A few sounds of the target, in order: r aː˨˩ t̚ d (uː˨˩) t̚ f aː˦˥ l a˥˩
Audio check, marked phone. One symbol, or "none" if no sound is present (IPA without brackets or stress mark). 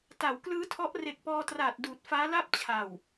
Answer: uː˨˩